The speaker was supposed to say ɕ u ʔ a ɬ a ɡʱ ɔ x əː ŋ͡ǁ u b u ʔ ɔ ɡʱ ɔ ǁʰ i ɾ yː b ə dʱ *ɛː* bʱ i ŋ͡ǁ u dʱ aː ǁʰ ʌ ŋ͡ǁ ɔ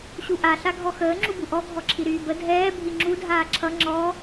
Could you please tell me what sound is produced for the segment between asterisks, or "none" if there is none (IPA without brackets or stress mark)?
ɛː